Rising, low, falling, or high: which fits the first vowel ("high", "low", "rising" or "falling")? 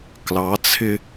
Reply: rising